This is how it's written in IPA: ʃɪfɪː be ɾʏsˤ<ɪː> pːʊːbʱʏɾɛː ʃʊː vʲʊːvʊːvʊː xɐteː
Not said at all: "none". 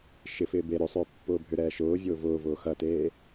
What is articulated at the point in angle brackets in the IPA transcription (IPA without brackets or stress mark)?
ʏː